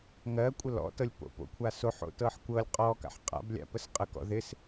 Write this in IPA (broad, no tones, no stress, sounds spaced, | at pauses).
ŋ ɜ kʷʼ ə l ɔ̰ t ɤ lʲ p o̰ p o̰ kʷʰ a s o ħ o̰ t ɤ ħ kʷ ɤ lʲ qʼ ɔ k a̰ ħ qʼ a̰ b lʲ a̰ p ə s qʼ ə k ɔ̰ ð ɪ s